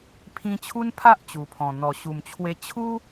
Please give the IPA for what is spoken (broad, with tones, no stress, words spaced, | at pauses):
pʰĩ˧t͡ɕʰu˦npʰa˦ʔ t͡ɕu˨˩pʰɔ̃˨˩ n̪ɔ˨˩ɕu˨˩mt͡ɕʰwe˧ t͡ɕʰu˦